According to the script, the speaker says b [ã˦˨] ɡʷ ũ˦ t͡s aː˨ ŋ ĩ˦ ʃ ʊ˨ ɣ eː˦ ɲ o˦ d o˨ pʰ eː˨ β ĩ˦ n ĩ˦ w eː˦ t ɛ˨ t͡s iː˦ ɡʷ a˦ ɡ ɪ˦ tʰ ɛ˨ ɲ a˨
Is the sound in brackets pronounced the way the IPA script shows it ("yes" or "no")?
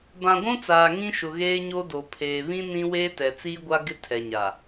no